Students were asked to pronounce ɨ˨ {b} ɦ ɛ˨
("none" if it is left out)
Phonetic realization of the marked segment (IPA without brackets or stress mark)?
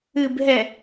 b